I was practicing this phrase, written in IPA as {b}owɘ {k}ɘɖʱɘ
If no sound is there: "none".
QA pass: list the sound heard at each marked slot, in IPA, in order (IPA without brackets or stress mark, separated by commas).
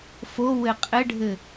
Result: f, qʼ